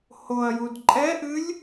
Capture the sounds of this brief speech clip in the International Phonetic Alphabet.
hoɐ̯jud ǃʼɛʔɨlʲ

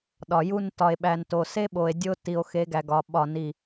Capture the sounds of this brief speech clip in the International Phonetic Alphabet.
ɗɒ˨ju˦n tɒ˨e̯ɓæ˨nto˨ se˦ɓo˨e̯ dʲo˦ ti˨o̯xe˨˦ɡæ˨ɡɒ˨ ɓɒ˦˨ni˦˨

